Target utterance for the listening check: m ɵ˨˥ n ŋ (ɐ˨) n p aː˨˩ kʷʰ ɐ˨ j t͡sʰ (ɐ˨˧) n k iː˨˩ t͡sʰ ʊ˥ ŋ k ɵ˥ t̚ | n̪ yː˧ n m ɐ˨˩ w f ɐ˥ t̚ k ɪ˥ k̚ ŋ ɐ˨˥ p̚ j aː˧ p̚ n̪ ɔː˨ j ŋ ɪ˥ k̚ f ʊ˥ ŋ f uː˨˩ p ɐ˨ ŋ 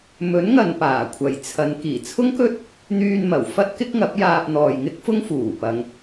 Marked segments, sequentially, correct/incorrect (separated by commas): correct, correct